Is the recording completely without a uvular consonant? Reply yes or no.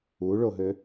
yes